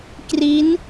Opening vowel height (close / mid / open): close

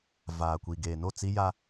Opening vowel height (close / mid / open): open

